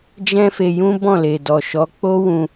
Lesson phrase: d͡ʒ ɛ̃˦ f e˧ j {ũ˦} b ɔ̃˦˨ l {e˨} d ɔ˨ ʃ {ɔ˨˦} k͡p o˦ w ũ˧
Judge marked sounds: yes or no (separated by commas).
yes, yes, yes